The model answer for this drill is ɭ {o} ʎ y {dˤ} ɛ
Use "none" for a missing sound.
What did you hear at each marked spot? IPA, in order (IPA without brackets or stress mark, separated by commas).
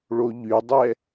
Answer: o, dˤ